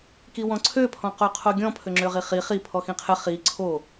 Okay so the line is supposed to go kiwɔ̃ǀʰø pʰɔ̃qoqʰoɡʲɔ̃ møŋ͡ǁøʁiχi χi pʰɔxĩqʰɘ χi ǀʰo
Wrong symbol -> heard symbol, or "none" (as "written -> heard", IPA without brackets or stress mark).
m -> pʰ